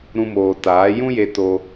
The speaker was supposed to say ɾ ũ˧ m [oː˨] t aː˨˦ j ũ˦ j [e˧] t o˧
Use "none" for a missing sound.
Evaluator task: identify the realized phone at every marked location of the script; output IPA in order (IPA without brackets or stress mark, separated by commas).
oː˨, e˧